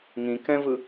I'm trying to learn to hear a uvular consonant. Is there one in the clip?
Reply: no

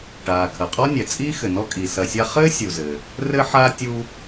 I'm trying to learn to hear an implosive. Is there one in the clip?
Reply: no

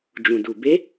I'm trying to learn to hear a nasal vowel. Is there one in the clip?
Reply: yes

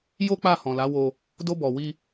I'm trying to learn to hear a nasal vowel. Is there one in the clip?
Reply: yes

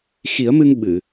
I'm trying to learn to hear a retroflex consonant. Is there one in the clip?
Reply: no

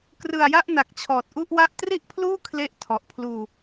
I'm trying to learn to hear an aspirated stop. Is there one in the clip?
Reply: yes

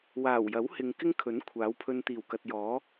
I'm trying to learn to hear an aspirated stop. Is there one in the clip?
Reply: yes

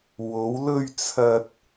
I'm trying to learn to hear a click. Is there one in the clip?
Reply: no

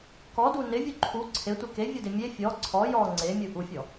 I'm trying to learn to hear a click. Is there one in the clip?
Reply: yes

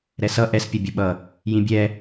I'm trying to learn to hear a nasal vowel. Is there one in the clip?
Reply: yes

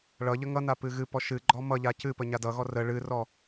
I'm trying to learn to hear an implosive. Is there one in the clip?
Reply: no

